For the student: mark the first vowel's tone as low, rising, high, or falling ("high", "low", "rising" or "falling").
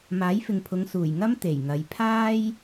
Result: rising